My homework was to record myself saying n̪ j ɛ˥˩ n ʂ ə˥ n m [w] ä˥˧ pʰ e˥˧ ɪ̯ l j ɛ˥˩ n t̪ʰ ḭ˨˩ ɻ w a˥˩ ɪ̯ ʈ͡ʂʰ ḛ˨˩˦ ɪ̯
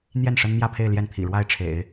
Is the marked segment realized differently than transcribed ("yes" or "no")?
yes